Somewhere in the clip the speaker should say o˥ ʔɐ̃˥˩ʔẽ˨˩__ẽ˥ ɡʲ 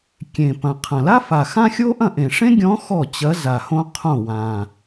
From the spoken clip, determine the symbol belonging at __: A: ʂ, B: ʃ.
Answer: A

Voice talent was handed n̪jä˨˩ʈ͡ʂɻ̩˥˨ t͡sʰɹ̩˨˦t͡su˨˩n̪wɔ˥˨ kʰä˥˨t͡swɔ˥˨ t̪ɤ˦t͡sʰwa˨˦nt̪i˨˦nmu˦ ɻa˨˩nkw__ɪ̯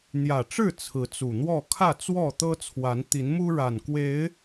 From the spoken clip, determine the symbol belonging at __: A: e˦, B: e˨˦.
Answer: B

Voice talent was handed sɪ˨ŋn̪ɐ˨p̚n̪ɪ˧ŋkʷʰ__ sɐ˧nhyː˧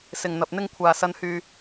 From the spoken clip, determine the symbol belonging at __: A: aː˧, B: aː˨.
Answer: B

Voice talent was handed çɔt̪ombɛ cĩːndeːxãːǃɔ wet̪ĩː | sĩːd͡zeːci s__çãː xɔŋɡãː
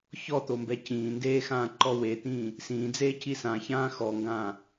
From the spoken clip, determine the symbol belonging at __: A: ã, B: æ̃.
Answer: A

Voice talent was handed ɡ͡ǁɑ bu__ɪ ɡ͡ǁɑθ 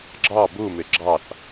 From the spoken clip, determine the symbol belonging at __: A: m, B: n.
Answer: A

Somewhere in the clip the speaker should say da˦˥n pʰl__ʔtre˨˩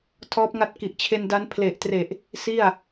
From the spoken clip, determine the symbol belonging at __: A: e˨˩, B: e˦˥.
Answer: A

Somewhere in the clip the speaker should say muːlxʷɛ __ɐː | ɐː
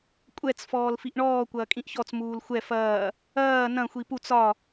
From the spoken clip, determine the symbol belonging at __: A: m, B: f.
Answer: B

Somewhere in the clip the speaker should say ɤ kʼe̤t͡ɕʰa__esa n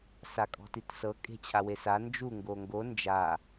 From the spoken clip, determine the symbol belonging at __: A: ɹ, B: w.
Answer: B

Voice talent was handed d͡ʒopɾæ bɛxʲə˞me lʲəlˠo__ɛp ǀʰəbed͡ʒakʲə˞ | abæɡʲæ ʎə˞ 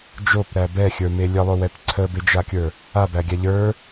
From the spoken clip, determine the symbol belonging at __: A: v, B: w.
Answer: B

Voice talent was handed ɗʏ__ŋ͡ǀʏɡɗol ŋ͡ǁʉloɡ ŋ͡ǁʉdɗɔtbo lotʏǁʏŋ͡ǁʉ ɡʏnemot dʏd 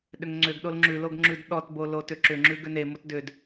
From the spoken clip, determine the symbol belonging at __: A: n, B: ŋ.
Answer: B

